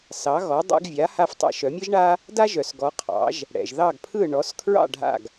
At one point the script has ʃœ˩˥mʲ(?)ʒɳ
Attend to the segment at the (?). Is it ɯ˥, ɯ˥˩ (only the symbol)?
ɯ˥